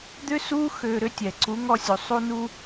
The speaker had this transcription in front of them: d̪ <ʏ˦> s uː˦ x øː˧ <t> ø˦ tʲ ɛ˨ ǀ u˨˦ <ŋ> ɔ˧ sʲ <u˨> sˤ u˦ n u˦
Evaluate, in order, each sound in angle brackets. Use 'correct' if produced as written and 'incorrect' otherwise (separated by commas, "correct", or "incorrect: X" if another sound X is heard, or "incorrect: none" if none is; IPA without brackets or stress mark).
correct, incorrect: ɾ, correct, correct